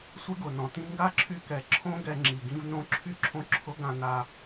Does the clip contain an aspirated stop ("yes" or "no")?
yes